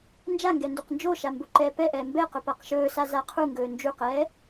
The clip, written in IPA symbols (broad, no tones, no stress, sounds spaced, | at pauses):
n d͡ʒ a ŋ ɡ ɛ n d u q n d͡ʒ o ʃ a m b o ǃ ɛː p ɛ ʔ ɛː m b ɛ q ɵ p a q ʃ ɵː s a z a qʰ u ŋ ɡ ɵː n d͡ʒ u q ɛː